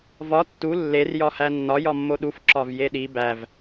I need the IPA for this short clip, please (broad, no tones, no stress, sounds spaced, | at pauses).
v ɒ tː u lː e r j ɒ h æ nː ɒ j ɒ mː o ɗ u f ǁ ɒ v j e ɗ i b æ v